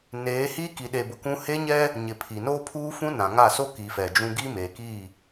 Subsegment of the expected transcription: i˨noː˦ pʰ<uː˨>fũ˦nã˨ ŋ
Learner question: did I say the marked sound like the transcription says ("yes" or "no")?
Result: no